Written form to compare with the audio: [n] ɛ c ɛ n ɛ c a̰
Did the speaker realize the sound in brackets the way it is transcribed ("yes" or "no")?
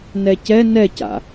yes